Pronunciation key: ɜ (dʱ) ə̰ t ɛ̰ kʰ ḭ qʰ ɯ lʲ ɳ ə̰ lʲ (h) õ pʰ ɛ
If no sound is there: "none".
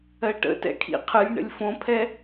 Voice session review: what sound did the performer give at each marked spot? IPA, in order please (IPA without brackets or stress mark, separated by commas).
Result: ʈ, f